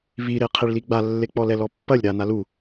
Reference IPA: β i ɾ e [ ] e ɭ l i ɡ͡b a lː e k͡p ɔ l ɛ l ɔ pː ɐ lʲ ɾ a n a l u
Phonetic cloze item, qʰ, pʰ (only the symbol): qʰ